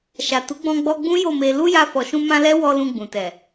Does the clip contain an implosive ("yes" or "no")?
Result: no